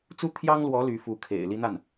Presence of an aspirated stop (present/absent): present